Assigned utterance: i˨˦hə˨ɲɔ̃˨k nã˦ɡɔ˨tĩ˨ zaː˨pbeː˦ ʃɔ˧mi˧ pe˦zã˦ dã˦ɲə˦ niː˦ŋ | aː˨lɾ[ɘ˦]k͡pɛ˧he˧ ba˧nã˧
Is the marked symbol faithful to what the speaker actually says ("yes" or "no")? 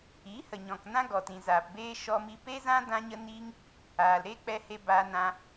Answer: no